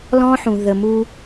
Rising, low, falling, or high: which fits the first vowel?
high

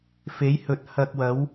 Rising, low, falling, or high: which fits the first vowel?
rising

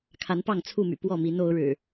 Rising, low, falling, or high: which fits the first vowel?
rising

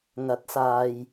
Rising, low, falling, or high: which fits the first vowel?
rising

